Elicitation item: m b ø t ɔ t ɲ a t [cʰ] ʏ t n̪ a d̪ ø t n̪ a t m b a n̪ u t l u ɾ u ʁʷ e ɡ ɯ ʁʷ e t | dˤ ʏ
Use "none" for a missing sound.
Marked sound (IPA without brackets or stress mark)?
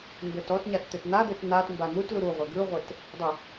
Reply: t̪